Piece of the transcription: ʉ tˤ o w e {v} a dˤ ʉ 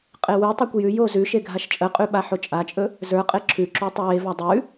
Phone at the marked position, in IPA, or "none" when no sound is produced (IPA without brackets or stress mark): v